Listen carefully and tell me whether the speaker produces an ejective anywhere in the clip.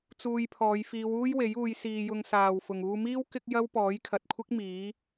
no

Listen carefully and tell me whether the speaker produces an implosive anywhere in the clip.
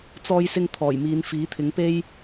no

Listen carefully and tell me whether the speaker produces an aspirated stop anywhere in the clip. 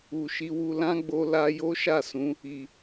no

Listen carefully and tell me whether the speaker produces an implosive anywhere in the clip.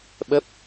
yes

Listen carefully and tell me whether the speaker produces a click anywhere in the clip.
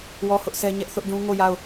no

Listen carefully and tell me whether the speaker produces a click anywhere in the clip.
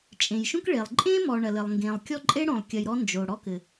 yes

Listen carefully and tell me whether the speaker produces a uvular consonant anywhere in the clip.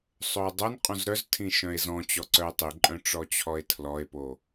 yes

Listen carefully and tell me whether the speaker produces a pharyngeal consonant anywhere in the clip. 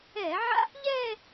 yes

